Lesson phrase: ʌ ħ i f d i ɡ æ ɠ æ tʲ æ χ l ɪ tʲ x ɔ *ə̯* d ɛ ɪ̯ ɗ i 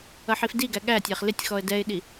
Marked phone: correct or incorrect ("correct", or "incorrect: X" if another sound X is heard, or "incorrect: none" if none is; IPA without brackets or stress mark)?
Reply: correct